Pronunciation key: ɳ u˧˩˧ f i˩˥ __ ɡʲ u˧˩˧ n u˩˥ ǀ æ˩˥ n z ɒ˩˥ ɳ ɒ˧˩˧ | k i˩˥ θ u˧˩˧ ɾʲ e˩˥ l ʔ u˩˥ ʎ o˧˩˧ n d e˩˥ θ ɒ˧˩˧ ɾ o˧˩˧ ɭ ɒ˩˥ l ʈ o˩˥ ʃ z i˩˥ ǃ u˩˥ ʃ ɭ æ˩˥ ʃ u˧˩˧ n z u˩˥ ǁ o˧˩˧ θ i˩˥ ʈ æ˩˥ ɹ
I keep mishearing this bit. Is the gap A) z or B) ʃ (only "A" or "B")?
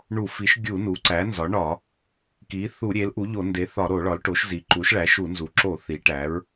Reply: B